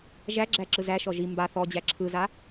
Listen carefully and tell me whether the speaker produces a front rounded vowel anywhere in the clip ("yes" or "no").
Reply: no